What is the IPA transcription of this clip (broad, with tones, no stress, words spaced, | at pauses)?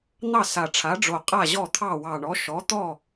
n̪ɑ˥˩sa˨˩ʈ͡ʂʰa˩˥ɖ͡ʐo˨˩ qʼa˥˩ʑɔ˥˩t̪ʰɑ˥˩ wɑ˨˩ɳɔ˩˥ ʃɔ˩˥t̪ɔ˥˩